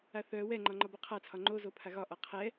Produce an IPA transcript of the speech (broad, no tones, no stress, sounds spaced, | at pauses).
a θ œ w ɛ ŋ͡ǃ ɒ ŋ͡ǃ ɒ b ɔ qʰ a t͡sʰ ɒ ŋ͡ǃ o z o pʰ a ɣ ɒ ʔ ɒ qʰ ɛ